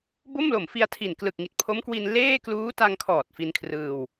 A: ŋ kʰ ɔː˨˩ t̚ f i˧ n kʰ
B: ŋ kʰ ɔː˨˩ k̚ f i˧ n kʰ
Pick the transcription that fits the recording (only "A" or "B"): A